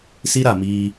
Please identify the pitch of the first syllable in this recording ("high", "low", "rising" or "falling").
high